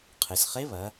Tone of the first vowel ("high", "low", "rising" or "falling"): low